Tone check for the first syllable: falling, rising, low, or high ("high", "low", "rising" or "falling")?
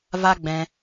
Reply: high